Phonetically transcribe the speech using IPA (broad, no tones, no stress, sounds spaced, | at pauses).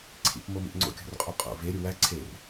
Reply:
ǀʰ ḭ p m o m ḭ ʔ ŋ͡ǀ o̰ kʲ o̤ r qʼ o qʼ o̰ v e ɾʲ u w æ ǀʰ e r